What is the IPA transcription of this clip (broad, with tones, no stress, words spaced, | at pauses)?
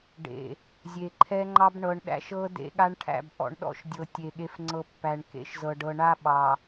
ɖḛ˨ | zʲe˨ǃʰɛ˦ŋ͡ǃɑ˦b ɳɤ˨ɳɗæ̰˦ʃɤ˦ dḛ˦ɠa˦ɳʈʰæ̰˦˨b ʔɔ̰˨ɳɗɔ̰˦ʃdʲɤ˨ tʲe˨ ɠe˨fŋ͡ǀɤ˨ pːæ˨ɳkḛ˦ʃzɤ˨ ɖɤ˨ɳa˦ɓɑ˨